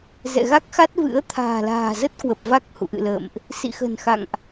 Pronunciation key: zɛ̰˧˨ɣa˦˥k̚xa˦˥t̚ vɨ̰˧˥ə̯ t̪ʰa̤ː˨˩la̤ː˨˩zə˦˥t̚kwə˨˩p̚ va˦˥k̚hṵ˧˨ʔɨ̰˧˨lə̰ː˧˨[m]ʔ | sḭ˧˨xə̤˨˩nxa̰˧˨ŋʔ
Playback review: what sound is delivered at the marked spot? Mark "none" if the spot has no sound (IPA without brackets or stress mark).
m